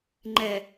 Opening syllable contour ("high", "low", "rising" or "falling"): low